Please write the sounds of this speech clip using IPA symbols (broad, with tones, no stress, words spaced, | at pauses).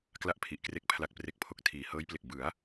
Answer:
kla˥˩ʔpʰi˨˩ʔkre˦˥k̚ pʰla˨˩k̚pre˨˩k̚pʰo˨˩k̚ tʰiː˨˩ hɤː˦˥jple˨˩k̚ bɯ˩˦a̯